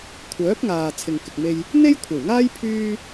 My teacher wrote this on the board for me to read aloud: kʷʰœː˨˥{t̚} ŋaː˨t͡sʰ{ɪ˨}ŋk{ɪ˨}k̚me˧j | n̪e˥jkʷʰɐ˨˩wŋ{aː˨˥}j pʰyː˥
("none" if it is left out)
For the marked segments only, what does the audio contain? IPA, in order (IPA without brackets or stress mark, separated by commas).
p̚, ɪ˨, ɪ˨, aː˥